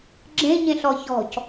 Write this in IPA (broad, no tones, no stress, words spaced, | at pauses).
ɡ͡ǁẽɲẽɬɔ çɔ̤c